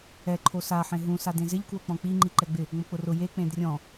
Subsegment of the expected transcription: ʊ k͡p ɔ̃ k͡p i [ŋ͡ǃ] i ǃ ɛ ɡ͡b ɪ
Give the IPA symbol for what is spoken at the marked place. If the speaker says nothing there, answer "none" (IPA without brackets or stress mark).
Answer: ŋ͡ǃ